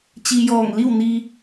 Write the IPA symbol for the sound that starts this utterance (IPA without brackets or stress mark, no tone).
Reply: t͡ɕ